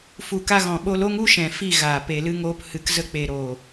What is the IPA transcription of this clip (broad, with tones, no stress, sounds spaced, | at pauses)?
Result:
f u˨ k a˧ ɣ ɔ̃˨ ɓ o˧ l o˦ ŋ u˦ ʃ ɛ̃˨ f i˦˨ ɣ aː˨ p e˨ l ɨ˧ ŋ oː˧ p h ɨ˨ k z ə˧ k͡p e˨ ɾ oː˨